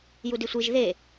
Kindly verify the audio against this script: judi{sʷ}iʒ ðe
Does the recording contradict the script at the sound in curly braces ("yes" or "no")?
no